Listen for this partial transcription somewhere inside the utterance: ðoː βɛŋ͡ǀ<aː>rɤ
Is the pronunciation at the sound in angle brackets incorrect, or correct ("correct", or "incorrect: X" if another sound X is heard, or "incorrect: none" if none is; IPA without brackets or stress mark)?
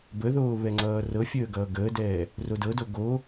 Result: incorrect: ʌː